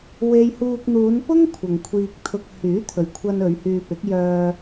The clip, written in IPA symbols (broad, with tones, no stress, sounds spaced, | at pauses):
w e˥ j h uː˧ k̚ n̪ uː˨˧ n p ʊ˥ ŋ kʷʰ ɐ˨ ŋ kʷʰ iː˧ k̚ t̪ʰ ʊ˧ k̚ h yː˨˥ t̪ʰ ɵ˨ ɥ kʷʰ ɐ˧ n ɵ˨˧ ɥ h yː˧ p ɪ˨˥ k̚ j œː˧